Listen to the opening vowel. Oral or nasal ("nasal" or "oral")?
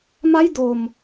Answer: oral